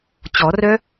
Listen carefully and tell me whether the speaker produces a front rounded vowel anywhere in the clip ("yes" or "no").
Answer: yes